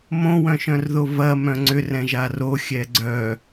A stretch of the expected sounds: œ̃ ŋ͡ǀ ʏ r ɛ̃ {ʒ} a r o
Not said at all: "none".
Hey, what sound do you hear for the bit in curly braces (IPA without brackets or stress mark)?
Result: ʒ